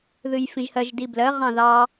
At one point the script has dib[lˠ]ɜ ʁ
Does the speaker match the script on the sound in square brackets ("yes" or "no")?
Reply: no